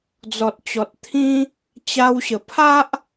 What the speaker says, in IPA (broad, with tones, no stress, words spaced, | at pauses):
d͡zɔ˨t̚t͡ɕɔ˨t̚t̪ʰĩ˦ | t͡ɕa˧wɕə˨˩pʰa˦ʔ